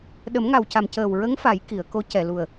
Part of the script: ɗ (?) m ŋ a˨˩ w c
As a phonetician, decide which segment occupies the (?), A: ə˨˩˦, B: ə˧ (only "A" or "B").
A